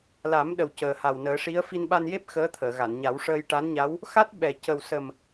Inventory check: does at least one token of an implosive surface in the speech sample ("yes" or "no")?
yes